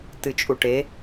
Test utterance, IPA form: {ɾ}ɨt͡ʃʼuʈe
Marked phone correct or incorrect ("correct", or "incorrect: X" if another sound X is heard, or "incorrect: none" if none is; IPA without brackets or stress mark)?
incorrect: t